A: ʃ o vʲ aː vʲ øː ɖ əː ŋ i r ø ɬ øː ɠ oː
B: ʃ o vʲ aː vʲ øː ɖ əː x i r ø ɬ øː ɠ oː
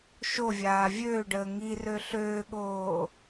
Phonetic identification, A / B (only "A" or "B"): A